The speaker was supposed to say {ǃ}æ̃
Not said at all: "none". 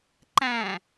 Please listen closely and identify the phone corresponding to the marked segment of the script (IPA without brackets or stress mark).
ǃ